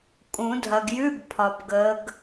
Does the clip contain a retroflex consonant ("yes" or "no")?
no